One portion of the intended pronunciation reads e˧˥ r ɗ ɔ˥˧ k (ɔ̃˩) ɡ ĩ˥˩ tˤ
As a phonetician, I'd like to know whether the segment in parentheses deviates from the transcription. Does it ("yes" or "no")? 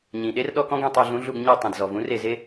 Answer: yes